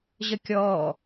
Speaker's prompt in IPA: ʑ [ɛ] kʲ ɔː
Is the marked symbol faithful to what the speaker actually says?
no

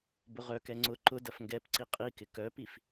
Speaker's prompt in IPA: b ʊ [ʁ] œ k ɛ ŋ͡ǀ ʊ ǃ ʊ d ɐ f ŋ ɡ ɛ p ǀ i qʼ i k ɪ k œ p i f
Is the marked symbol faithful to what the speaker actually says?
yes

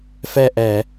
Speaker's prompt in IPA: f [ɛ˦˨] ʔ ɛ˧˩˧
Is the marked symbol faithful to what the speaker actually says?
yes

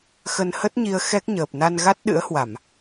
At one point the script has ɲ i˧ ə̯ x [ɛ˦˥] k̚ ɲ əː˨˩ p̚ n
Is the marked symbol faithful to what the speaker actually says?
yes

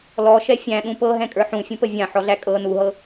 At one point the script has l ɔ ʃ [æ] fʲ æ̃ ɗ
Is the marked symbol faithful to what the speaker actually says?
no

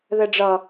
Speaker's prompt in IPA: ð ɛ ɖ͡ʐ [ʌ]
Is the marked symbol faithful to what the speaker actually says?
yes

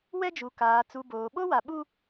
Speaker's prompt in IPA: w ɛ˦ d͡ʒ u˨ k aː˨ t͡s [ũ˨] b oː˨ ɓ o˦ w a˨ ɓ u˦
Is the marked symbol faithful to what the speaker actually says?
no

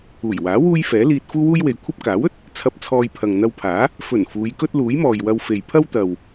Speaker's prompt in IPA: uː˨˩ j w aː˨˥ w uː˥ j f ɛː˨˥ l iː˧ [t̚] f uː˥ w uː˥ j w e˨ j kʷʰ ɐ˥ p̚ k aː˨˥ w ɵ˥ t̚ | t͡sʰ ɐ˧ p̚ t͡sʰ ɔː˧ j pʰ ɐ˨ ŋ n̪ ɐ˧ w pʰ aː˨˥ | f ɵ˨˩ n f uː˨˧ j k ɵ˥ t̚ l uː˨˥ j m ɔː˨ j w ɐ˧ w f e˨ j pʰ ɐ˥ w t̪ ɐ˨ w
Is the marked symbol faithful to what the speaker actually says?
yes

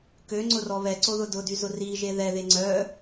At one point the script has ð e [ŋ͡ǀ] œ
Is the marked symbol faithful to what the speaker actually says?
yes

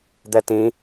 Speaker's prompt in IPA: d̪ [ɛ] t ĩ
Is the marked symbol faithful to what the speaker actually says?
yes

